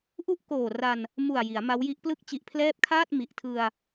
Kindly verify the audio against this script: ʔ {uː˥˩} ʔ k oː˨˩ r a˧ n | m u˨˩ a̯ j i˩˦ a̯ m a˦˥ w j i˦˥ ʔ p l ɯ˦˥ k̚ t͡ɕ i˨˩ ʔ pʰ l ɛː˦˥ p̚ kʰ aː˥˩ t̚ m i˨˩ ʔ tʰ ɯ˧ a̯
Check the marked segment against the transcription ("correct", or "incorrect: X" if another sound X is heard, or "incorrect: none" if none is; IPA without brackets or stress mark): incorrect: u˥˩